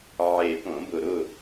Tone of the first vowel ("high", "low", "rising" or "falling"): low